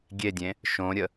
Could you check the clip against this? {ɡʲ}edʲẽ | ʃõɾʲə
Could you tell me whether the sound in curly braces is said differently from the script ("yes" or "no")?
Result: no